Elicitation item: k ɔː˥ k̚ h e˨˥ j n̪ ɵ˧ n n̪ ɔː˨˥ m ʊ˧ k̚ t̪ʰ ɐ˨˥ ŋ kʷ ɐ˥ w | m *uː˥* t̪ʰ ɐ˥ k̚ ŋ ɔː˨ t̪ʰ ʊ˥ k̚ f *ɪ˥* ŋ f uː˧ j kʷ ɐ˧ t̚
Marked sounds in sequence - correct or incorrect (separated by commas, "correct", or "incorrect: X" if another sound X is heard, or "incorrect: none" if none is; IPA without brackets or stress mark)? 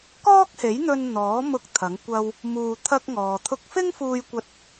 incorrect: uː˧, correct